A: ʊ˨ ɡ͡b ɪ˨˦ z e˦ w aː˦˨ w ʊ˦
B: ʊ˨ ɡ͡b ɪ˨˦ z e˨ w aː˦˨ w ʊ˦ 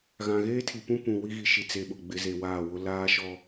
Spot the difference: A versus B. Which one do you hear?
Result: B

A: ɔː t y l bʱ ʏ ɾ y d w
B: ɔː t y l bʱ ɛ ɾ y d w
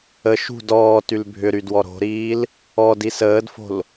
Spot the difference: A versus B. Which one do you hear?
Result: A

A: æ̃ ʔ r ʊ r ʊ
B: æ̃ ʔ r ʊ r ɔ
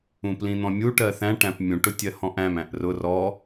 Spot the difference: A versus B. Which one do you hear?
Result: B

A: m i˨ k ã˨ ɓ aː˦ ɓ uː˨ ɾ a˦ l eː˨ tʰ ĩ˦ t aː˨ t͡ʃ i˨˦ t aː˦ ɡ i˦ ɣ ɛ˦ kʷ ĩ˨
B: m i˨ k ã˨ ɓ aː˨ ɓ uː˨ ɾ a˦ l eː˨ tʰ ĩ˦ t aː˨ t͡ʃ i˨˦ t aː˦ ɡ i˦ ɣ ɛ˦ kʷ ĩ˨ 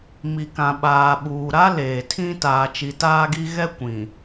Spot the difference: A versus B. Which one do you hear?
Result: B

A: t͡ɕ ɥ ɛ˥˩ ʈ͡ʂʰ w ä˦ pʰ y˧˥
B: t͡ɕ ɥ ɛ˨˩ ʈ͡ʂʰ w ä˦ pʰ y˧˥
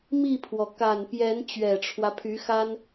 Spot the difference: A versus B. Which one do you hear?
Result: B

